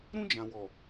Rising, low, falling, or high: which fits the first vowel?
high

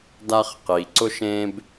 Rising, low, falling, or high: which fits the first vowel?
high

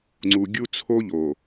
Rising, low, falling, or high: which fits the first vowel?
low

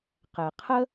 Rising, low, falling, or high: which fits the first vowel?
low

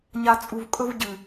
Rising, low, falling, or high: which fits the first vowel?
low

